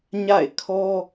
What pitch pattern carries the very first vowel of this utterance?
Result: falling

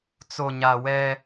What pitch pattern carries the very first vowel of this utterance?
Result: low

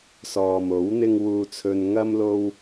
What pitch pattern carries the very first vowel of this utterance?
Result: low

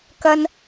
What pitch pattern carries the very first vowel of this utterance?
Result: high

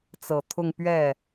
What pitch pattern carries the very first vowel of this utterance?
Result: low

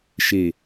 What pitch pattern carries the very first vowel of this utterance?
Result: low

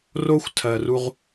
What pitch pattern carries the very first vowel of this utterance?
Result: high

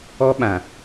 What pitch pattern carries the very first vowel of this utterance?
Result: high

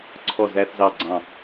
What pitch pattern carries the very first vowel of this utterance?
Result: falling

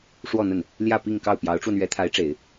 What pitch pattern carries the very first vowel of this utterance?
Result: falling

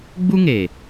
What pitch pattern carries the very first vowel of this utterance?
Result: high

